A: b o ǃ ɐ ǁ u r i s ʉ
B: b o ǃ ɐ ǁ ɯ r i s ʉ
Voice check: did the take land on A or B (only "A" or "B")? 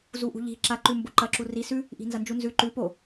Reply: A